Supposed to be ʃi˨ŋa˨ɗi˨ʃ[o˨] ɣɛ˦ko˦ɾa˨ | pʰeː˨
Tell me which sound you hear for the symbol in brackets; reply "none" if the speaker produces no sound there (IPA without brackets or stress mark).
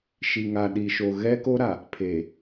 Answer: o˨